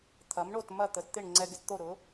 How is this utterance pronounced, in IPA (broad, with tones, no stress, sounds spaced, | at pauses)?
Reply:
t̪ʰ ɐ˩˥ m ɳ o˥˩ t m ɐ˥˩ t̪ ə˩˥ t t̪ ɪ˥˩ ɳ ŋ͡ǀ ɛ˧ ɡ ɪ˩˥ t t̪ o˥˩ ɾ ʊ˩˥